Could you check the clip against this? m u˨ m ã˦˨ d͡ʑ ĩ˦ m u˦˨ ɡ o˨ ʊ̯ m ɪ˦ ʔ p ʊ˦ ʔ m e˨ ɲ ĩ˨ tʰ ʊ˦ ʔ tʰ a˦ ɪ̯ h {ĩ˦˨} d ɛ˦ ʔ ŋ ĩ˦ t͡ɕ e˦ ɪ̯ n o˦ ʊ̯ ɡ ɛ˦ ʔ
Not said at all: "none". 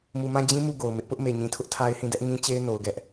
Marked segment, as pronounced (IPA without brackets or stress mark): ĩ˦˨